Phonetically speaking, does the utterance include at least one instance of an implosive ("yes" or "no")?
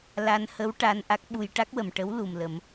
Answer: yes